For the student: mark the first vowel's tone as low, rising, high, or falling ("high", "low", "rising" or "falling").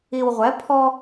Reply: low